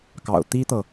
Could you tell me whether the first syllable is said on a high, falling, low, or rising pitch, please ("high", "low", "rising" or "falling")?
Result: low